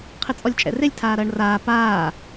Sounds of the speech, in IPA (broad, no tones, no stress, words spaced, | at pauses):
qʰɘt͡sʼɔlʲt͡ʃʼɛ̰relʲ tʰaːɾɐːɳraː paː